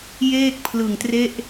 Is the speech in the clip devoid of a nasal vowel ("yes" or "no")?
yes